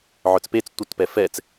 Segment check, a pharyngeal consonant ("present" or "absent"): present